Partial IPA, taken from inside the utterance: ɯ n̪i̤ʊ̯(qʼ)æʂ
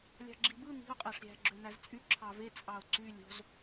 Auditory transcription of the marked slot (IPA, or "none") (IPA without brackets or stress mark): qʼ